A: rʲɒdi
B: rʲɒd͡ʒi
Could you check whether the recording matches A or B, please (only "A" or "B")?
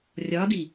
A